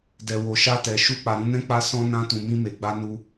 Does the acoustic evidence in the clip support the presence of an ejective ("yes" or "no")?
no